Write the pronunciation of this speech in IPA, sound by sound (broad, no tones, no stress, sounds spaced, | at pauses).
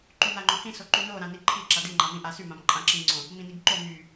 ǃ y n a ŋ͡ǃ õ h ĩ s o ǃ y n o ɾ ã n i ǃʰ i ǁ a d i ŋ͡ǃ a m ĩ ʔ a s y m ã m ǃʼ ã ǁ ĩ ŋ͡ǀ õ | m ĩ n i ɡ ǃ o m y